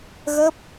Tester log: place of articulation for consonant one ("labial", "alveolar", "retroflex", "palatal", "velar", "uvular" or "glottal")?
velar